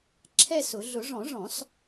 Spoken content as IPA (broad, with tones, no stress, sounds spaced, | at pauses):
ǁʰ ɛ˥˧ s ʊ˨˩˦ ɮ ʊ˨˩˦ ʐ ɔ̃˨˩˦ ʐ ɔ̃˨˩˦ s